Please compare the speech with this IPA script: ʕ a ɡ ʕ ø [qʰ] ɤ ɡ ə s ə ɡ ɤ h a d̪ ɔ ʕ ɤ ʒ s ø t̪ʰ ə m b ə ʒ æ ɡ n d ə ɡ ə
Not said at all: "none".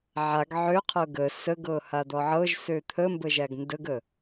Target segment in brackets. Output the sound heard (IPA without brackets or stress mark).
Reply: qʰ